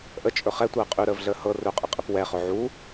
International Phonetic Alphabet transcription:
ʔ ə t͡ʃʼ ɵ χ ɛ tʷ əː qʼ ʉ ɾ əː v ɮ əː h ɤ r ɵ qʼ ə qʼ ɘ p w ɛ χ ɵ ʕ u

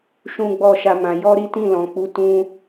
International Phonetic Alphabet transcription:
ʃ ũ˦ ɡ͡b ɔ˦˨ ʃ a˧ m ã˨ j ɔ˧ ɾ i˦ t ĩ˦˨ l ɔ̃˨ k͡p u˨˦ t ũ˧

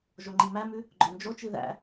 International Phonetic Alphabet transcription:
ʒ o ŋ͡ǃ i m æ m ʉ | ɡ͡ǃ œ n d͡ʒ o t͡ʃ i ð æ̰

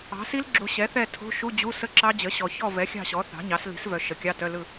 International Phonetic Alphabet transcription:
ɑ̤˩˥ s i˦˥ l ɡ͡ǁ u˨ ɕ ɛ˩˥ θ ɛ˦˨ tʰ o̤˧˥˧ ʃ u˧˥˧ d͡ʑ u˧˥˧ s ə˦˥ ǁ ɑ˦˥ d͡ʑ ə˩˥ ɕ ɔ˨ ç ɔ˦˨ v ɛ˩˥ xʲ ɑ̤˦˨ ɕ ɔ˩˥ θ ɑ̤˩˥ ɲ ɑ˩˥ s l i̤˩˥ s v œ˨ ʃ ə˩˥ kʲ ɑ˧˥˧ t œ˧˥˧ l ɯ˦˨

